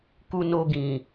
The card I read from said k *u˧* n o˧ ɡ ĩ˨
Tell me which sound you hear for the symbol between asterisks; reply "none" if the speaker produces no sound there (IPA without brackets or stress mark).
u˧